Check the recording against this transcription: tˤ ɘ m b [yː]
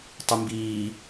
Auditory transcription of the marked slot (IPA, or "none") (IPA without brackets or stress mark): iː